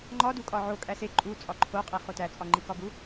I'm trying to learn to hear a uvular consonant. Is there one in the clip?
yes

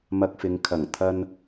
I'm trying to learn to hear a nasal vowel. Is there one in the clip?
no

